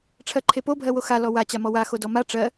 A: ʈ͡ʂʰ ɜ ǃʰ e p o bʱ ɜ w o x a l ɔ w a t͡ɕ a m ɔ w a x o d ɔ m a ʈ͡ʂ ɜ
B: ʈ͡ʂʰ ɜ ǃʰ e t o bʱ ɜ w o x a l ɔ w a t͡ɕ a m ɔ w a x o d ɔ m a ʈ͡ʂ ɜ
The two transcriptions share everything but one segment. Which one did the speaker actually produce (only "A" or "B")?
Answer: A